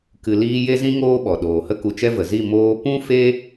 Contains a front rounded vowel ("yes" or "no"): no